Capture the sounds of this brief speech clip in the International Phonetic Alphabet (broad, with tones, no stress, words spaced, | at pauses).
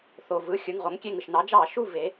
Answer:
θo˩vɯ˩˧˩ xʲɯ˩˧˩ŋʁo˩˧ŋkʲe˦˨ŋɯ˩ʃ nɑ˩˧d͡ʒɑ˧˩˧ʃu˦˨ ve˩˧